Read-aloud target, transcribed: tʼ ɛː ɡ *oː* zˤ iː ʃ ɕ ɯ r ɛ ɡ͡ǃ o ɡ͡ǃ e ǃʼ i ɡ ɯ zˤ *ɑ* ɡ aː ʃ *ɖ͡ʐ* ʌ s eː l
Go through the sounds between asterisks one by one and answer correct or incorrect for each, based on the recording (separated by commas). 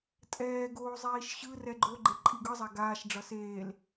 correct, incorrect, correct